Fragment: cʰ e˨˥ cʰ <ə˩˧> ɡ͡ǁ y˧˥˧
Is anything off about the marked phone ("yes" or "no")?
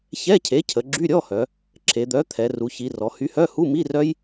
no